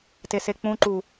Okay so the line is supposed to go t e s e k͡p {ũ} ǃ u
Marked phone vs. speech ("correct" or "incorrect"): correct